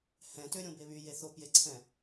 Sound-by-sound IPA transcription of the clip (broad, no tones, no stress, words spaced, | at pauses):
hɛ̃tø ɾʲõbeβy jeθopjeǀʰɛ̃